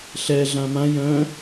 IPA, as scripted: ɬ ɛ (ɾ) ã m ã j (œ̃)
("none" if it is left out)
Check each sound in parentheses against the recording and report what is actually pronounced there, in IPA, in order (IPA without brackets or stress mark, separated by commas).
ɮ, œ̃